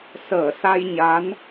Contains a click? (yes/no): no